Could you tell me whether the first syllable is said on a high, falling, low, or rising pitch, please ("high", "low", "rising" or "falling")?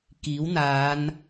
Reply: rising